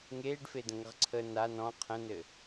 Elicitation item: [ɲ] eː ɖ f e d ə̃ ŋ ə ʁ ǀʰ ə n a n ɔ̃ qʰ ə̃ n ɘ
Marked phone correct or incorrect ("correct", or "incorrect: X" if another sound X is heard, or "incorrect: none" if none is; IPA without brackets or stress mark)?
incorrect: ŋ